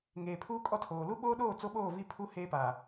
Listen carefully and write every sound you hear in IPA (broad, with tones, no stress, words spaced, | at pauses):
ŋeː˨pʰuː˦kʼɔ˦tʰoː˨ lu˦ɓoː˦ɗoː˦˨ t͡so˦ɓoː˦˨vi˦ pʰu˦ heː˦pa˨